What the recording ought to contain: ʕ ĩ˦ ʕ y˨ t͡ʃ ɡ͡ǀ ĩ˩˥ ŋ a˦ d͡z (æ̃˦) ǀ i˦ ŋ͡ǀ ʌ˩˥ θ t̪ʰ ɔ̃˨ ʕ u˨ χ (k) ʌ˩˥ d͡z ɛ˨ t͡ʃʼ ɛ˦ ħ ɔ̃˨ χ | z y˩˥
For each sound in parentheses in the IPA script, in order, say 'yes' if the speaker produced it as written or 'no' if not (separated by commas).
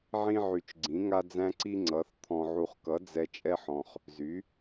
yes, yes